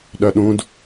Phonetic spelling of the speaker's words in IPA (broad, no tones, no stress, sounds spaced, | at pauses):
ɗ œ ɗ ũ d